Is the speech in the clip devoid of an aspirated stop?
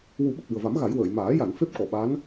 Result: yes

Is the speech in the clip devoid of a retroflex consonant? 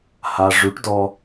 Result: no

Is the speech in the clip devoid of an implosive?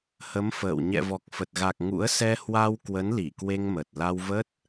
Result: yes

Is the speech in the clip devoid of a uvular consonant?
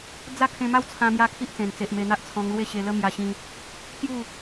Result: yes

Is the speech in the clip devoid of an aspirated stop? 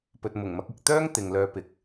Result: yes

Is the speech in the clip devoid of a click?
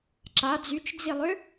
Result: no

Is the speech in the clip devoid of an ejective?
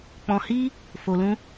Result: yes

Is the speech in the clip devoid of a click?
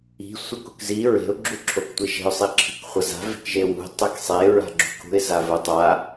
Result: no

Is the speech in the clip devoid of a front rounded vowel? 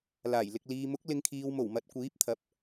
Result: yes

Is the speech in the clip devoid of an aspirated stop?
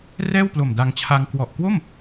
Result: no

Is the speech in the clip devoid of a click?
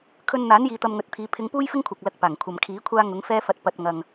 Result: yes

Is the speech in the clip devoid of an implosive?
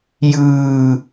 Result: yes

